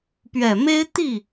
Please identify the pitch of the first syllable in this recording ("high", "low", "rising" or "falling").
low